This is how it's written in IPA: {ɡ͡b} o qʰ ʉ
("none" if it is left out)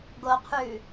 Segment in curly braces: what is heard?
ɡ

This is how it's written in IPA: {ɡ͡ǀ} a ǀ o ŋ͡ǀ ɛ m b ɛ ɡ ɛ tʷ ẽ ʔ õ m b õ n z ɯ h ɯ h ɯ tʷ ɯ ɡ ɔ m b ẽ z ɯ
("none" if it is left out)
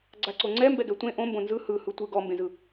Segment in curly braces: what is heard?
ɡ͡ǀ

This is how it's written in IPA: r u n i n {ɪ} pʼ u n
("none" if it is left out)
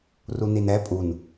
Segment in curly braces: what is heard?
ɛ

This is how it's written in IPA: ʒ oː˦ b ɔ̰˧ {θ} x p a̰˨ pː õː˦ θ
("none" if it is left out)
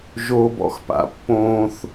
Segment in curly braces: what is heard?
none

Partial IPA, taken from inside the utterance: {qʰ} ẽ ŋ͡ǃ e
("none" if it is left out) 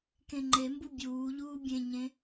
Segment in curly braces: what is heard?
k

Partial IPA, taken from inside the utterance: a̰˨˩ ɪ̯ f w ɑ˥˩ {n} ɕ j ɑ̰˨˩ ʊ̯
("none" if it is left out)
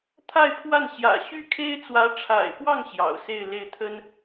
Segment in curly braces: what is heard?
ŋ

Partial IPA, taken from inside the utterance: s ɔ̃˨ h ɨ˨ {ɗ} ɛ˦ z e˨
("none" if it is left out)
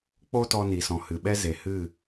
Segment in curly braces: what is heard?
ɓ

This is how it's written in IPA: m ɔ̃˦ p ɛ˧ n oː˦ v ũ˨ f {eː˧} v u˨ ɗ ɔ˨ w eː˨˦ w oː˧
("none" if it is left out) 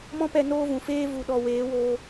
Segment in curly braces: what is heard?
eː˦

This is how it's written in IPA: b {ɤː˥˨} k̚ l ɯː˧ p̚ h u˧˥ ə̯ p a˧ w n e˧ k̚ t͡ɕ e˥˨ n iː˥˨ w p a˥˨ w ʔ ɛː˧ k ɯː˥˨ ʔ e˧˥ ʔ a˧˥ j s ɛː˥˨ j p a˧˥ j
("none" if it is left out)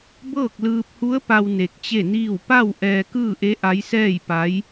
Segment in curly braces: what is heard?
ɤː˥˨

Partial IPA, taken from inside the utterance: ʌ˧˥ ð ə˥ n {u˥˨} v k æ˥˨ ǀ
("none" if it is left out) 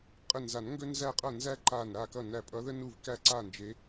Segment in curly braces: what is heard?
u˥˨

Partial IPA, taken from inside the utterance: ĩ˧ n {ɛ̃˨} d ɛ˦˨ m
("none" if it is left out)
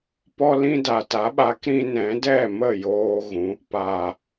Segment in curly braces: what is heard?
ɛ̃˨˦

